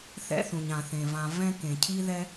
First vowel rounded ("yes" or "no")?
no